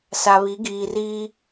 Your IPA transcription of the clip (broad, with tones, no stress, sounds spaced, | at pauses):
s a˨ β i˨˦ ɡ iː˨ r iː˦